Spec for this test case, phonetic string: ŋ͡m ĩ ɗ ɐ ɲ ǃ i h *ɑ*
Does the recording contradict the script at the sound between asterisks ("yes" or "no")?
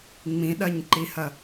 yes